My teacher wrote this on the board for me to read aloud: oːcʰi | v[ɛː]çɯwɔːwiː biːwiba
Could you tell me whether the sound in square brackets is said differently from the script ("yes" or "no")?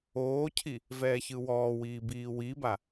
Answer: no